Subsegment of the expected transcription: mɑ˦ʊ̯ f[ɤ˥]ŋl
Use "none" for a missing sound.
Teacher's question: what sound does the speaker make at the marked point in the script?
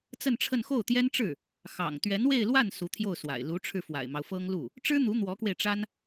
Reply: ɤ˥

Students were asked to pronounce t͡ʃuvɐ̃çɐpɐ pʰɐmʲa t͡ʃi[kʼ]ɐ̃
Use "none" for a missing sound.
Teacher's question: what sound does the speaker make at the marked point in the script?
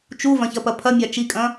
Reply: kʼ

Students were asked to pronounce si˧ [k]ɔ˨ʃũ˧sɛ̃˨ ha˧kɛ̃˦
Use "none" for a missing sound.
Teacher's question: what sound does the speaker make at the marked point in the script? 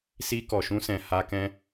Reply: k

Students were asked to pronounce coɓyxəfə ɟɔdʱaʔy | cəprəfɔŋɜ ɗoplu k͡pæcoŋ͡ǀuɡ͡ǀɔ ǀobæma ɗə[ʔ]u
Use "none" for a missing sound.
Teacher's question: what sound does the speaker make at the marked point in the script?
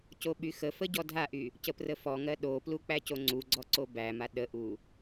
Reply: ʔ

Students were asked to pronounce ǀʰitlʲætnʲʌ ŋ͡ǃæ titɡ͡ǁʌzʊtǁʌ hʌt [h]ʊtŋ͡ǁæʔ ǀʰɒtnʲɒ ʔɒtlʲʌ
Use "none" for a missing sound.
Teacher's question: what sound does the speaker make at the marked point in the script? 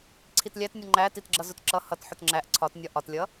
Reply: ħ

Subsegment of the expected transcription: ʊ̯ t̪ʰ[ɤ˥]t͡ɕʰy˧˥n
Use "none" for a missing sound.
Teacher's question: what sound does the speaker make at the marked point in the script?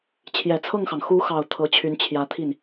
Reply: ɤ˧˥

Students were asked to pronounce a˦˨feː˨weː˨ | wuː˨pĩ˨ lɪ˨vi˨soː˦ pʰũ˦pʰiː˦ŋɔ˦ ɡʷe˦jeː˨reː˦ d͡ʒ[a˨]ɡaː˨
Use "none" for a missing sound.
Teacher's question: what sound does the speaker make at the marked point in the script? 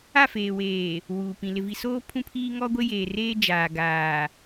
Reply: aː˨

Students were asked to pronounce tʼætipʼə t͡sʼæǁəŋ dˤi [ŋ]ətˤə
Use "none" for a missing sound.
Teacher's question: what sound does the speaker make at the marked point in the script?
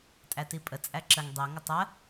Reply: ŋ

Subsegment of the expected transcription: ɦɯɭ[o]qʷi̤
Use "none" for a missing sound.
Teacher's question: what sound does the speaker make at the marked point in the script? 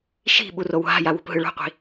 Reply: o̤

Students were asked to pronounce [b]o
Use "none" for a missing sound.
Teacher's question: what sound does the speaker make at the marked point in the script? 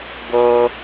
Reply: b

